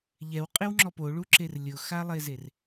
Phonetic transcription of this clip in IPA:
ʎɛwqʼɪwŋ͡ǁɔp oɭuǁer lʲʊxalˠezer

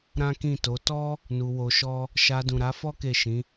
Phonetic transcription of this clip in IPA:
ɾã˦kĩ˦˨to˨˦ tɔ˦ | nu˧wo˧ʃɔ˦ | ʃa˧dũ˨ɾa˨˦fɔ˦ ke˦˨ʃĩ˨˦

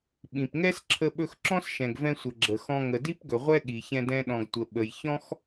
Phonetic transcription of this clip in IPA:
ɓĩ˩p ŋɛ˥sǁʰə˧ ɓɵ˧xǁɔ̃˥sʃɛ̃˩ɡvɛ̃˧ sʷə˩ɡ͡ǁə˩xɔ̃˧ ŋə˩di˥pɡɵ˩ ʁʷɛ˥ɠi˩çɛ̃˧ dɛ̃˧ɗɔ̃˩ɡ tʷə˩ɓə˩j çɔ̃˥x

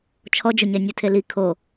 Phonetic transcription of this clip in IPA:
t͡ʃʰɔd͡ʒʊɲɛ nʲutʰeli kʰo

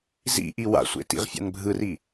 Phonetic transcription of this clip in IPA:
zḭʔi wa̰sʷḛ tḭʁfʲa̰nbʱɯri

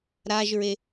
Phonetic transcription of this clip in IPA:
ɾaʒɹe

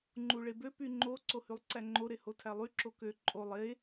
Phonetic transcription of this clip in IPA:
ŋ͡ǃuɭebø pyŋ͡ǃo ǀohylˠǀæŋ͡ǃo ɾehotʰælˠy ǁokø ǃʼolˠ e

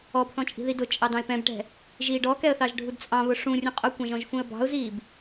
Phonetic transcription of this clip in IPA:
ɔbθɔ̃ t͡ʃʼi̤ðidʊt͡ʃʼɑ dɑ̃ɪ̯pɛ̃bʈɛ̤ | ʒiːɖɔkɛə̯ θɑʒɖʱudt͡sʼɑ̃βʊ ʂũ rʲũqʼʊkʷɑ̃ʒ ɔ̃ʒfũə̯bɑ̤ʊ̯ziːb

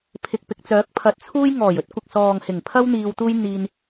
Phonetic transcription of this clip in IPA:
pʰɪ˨k̚pɪ˨k̚t͡sœː˨˥k̚ pʰɐ˨˥t̚t͡sʰuː˥j ŋɔː˨˩j ɵ˨˥t̚kʷɪ˨k̚sɔː˨ŋ hɪ˨˩ŋpʰɐ˥w n̪iː˧wt̪uː˥j n̪iː˧n

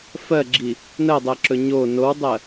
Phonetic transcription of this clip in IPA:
fɜɡ͡ǁi | nɜdˤɜǁɵ ɲo nowdˤɜ

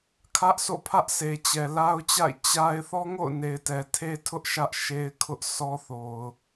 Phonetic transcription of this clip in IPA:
kʰä˦ʔsʰo̰˦˨pʰä˦ʔ sʰe˨t͡ɕɛ˨ la˦ʊ̯t͡ɕa̰˦˨ɪ̯ t͡ɕa˦ɪ̯ θɔ˦ŋo̰˦˨ʊ̯ne˨ɪ̯ tɛ˨tʰe˦tʰʊ˦ʔ ʃä˦ʔʃe˦ɪ̯ kʰʊ˦ʔsʰɔ˦θo˨ʊ̯

